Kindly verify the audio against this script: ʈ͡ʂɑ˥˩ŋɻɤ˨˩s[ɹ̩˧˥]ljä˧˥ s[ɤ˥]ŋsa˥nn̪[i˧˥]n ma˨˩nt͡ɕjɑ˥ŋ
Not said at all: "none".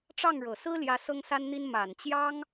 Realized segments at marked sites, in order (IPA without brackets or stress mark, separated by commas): ɹ̩˥, ɤ˥, i˥